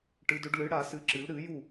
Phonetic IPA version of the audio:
ʈɨ˩˧dɵ˩˧ɖ lɨ˩˧ɽa˧˩˧sɨ˩˧ǁɨ˩˧l ɾɨ˧˩˧ju˧˩

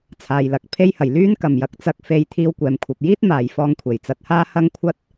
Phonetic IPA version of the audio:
t͡sʰaː˨jlɐ˨k̚ pʰe˧jhɐ˨˩j lyː˥nkɐ˨˩mjɐ˧k̚t͡sɐ˧k̚ fe˧j t̪ʰiː˧wkʷɛː˨mkʷʰɐ˨p̚ jiː˥t̚ maː˨jfɔː˧ŋkʷʰe˨˩j t͡sɐ˧t̚haː˥ hɐ˥ŋkʷʰɐ˥t̚

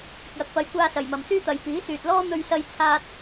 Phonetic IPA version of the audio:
kɪ˨k̚jɐ˨k̚pɐ˨˧jkʷaː˧ sɐ˨˩jmɐ˨˩msyː˥t̪ɐ˨j piː˨˥syː˨t̚lɔː˥ n̪ɵ˧ɥsɐ˧jt͡sʰaː˧t̚

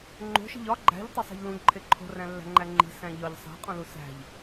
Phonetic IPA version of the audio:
ŋ͡ǃo̤ʃi̤ʎ ɒ ɡ͡ǃæ̤ʎtˤæsˤe̤ʎ lũʎǃʰe ǃʰo̤ræ̃lːæ̤ŋ͡ǃæ ŋ͡ǃi̤sæ̃ ʎɒʎ sˤæ̤qʼũlu sæ̤ʎ

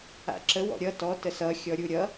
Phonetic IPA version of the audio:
a̰ǁə wɔ̰ɾʲʌ tɔ təsʌ xʲɔɾʲuɾʲʌ

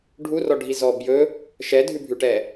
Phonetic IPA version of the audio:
ɖʱurɔɖʱizɔ bjɵ | ʃɛdʱʉbʱʉʈɛ

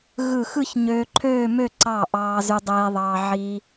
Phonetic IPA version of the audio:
ɣɯ˧˩xɯ˥˧ç ɲøː˧ǃʰøː˥˧mø˥˧ ǀɑ˧˩ ʔɑː˧zy˧dˤeː˧ðˤɑː˧ ʕi˧

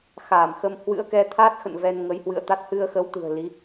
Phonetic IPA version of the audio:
xaː˧˩mxə˧m hwɨ̰˧˥ə̯kɛ˧t̪ʰa˦˥t̚xə̰˧˨n vɛ˧nŋə˨˦jhwɨ̰˧˨ə̯t̪a˦˥t̚ hɨ˧ə̯xə˨˦wt̪ɨ̤˨˩ə̯ li˨˦

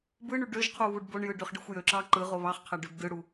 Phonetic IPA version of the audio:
bɯɳy ɖøʒqʰu βuɖboɳjɯ ɖøχɖɯxʷjøǁɑ ǃɯʁo βɑχqʰæɖ øbdɯɽu

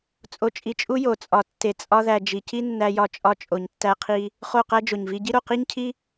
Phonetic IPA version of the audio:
t͡sʼo˧t͡ʃʼi˧t͡ʃʼu˦jo˨ t͡sʼɒ˨tːe˨ t͡sʼɒ˦ðæ˧ d͡ʒi˨ci˦nːæ˧jɒ˧ t͡ʃʼɒ˧t͡ʃʼo˨ɲtːæ˧qʰi˧ | χo˦˨qæ˦d͡ʒo˨ɲvi˦ ɟi˦ɾo˧qi˦ɲcʰi˦

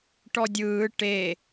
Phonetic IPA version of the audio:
ʈɔdʲɯː ʈe

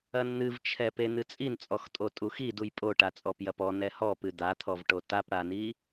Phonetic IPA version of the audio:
ɐnn̪ɨvt͡ʃʰɛpe n̪ɨt͡sʼint͡sʼɔxtʼo tʼuxiduj pʼoʈa t͡sʼɔpjɐpɔ nɛhɔpɨ d̪at̪ʰɔvʈo tapɽani

